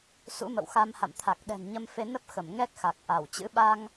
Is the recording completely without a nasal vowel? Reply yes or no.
yes